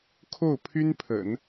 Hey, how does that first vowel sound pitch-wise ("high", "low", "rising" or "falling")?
falling